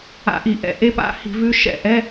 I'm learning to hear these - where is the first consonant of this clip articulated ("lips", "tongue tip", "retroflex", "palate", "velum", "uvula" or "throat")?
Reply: throat